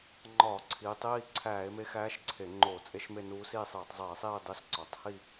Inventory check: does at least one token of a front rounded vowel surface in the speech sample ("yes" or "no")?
no